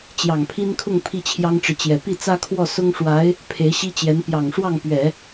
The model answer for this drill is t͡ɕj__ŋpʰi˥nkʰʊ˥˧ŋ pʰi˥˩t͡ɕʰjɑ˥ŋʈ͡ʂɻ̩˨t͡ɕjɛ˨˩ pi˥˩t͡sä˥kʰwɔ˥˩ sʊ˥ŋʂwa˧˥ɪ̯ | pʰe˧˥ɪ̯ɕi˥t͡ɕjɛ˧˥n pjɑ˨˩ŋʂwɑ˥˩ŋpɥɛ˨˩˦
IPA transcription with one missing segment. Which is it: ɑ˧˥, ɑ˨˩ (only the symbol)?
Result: ɑ˨˩